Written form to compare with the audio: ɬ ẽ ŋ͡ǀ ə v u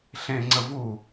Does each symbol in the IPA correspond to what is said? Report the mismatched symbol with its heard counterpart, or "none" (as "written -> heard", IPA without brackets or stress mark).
none